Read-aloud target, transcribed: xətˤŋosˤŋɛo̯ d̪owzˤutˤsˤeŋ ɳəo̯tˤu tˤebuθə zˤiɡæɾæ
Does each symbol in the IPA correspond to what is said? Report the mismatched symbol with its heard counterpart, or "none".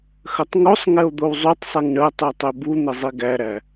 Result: θ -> n̪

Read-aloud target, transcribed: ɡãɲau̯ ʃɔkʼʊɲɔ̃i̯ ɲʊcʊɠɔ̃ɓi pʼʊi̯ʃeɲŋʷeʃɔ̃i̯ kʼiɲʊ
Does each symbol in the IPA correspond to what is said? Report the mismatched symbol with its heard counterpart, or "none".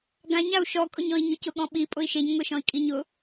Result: none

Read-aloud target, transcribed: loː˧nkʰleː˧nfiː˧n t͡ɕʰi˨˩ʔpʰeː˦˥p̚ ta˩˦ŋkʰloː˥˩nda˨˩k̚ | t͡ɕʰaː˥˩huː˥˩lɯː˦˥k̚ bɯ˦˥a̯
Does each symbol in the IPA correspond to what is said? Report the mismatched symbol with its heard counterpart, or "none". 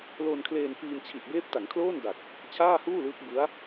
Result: pʰ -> b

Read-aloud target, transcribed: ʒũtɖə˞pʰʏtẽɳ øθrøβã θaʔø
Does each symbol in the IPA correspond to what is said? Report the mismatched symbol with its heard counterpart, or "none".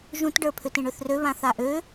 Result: none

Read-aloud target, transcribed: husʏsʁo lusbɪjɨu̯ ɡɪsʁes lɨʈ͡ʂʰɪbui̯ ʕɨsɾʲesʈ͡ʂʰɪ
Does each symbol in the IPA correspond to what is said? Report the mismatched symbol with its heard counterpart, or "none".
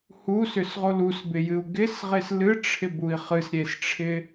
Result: ʕ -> χ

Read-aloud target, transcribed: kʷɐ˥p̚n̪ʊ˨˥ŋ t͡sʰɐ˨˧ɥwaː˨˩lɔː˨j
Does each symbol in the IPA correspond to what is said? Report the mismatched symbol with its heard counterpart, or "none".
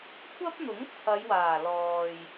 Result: ɥ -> j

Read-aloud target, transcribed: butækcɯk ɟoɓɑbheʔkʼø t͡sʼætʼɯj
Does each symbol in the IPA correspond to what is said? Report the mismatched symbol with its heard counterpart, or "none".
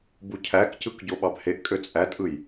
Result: t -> cʰ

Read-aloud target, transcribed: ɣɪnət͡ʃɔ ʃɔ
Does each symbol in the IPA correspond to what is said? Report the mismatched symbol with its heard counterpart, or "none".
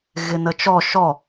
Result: none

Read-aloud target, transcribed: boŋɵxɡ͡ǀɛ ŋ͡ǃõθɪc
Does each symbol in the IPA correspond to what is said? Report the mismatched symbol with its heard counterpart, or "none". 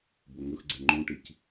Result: θ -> ʈ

